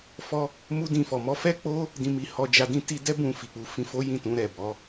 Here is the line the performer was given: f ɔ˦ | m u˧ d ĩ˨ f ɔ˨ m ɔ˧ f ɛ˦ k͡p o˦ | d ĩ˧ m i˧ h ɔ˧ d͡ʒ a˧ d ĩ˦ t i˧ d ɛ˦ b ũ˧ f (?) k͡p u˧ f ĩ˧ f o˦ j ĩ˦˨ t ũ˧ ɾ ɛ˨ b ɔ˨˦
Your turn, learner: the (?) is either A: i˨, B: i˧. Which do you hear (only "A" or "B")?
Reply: A